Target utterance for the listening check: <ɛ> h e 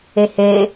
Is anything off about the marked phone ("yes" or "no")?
yes